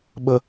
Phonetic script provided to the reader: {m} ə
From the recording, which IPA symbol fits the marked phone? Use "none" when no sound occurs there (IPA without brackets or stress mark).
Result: ɓ